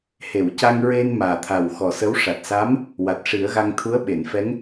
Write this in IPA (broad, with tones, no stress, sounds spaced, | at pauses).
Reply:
h e˨˩˨ w c a˧ ŋ ɹ e˧ n m aː˨˩ t̪ʰ a˨˩ w x ɔ˨˩ s ə˧˥ w ʂ a˨˩ t̚ s a˧˥ m | w a˨˩ t̚ ʂ i˨˩˦ ə̯ ɣ a˧ ŋ t̪ʰ u˧˥ ə̯ ɓ e˨˩˨ n f ɛ˧˥ ŋ